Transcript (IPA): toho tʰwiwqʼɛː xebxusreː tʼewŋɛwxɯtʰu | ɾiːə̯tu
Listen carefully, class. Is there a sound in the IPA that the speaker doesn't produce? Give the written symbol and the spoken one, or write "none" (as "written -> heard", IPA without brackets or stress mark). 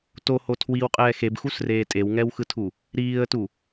none